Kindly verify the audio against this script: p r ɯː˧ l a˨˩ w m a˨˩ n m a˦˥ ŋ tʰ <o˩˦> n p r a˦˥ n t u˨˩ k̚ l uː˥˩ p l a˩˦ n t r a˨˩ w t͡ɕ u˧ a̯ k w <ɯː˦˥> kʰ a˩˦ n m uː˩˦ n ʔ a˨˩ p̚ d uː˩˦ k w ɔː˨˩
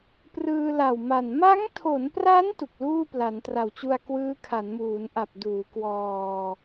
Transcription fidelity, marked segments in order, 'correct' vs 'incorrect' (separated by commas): correct, correct